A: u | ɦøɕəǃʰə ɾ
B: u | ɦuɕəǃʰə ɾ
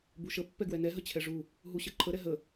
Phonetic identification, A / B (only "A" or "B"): B